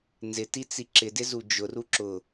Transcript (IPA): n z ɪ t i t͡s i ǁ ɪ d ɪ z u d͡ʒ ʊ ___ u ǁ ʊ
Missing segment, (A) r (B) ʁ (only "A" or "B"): A